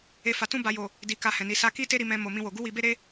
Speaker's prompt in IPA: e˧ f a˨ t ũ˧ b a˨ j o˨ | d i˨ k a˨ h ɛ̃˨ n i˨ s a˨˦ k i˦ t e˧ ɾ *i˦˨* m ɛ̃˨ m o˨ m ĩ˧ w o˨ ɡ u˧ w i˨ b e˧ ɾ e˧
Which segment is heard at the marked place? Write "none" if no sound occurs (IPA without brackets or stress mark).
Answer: i˨